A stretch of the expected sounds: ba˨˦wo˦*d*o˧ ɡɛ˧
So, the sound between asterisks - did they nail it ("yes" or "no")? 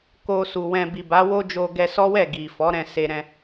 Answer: no